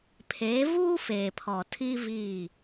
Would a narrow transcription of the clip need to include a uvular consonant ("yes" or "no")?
no